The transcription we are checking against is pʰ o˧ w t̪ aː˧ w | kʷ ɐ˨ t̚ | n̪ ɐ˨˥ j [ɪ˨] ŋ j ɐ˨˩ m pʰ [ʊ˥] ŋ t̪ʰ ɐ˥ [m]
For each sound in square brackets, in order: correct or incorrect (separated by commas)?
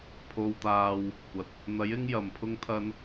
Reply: incorrect, correct, incorrect